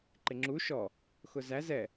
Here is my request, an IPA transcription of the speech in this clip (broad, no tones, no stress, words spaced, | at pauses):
ǃɪŋ͡ǁu ʃɔ | xʊzæz ɛ